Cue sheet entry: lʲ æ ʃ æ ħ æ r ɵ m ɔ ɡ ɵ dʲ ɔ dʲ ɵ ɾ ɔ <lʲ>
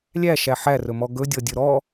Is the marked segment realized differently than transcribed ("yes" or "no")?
yes